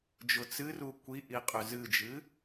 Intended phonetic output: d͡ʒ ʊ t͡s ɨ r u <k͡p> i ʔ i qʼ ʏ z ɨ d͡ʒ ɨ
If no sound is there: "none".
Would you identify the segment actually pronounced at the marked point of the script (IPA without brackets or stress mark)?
kʷ